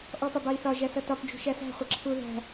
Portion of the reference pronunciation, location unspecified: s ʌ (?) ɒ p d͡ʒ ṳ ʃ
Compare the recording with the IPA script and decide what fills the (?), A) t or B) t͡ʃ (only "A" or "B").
A